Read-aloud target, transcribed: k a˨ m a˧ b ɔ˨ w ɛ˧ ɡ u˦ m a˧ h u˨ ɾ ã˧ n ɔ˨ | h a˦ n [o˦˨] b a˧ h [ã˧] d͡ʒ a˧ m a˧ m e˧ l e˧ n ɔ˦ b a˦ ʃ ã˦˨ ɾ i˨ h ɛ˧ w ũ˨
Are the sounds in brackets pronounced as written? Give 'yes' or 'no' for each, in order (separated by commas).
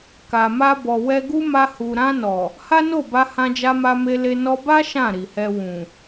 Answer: yes, yes